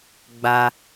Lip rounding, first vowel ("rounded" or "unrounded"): unrounded